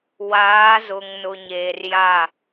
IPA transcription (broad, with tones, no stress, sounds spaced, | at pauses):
w aː˨˦ z ʊ˨ ŋ n ʊ˨ ɲ eː˨ r j a˦˨